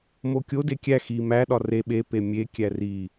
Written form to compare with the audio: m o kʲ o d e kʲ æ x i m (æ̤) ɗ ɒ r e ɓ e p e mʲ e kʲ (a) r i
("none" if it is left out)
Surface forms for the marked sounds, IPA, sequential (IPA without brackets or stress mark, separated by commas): æ, æ